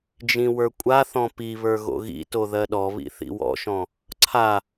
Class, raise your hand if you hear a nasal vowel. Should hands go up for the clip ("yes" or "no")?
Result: yes